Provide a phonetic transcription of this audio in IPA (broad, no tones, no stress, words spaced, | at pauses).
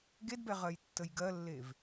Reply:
ɡedbɛ ʁɜjtːəjɡɜlːev